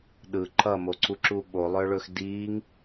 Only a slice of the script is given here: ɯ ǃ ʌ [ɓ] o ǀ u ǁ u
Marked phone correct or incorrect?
incorrect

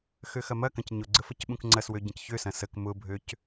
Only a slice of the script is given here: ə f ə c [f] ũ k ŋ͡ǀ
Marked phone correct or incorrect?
incorrect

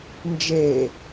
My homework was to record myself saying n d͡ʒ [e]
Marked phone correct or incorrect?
correct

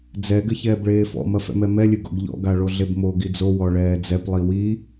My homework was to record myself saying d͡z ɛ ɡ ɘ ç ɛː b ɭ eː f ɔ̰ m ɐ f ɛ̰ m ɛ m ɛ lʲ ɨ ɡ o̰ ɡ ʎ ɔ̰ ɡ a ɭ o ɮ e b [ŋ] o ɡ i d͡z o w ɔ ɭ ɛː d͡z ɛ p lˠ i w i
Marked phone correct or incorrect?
incorrect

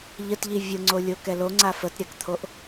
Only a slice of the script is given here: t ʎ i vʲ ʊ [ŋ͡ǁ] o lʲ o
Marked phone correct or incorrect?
incorrect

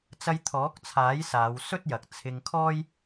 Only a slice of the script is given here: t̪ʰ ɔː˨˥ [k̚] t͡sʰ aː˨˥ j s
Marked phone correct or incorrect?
correct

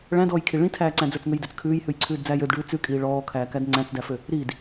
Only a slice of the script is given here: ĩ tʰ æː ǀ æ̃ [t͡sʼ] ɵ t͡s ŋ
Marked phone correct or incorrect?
incorrect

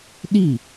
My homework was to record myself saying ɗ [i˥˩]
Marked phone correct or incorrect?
correct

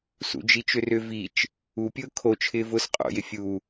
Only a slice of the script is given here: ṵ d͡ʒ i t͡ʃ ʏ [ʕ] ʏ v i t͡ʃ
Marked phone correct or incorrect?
incorrect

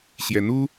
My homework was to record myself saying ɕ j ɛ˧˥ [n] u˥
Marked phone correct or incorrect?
correct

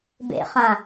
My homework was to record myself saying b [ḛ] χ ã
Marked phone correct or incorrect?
correct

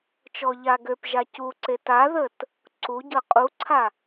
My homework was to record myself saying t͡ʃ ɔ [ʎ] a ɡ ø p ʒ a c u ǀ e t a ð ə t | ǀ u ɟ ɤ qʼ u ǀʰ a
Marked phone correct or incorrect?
correct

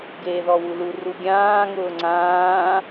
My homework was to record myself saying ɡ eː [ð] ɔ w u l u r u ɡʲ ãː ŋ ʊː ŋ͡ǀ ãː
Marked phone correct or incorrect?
correct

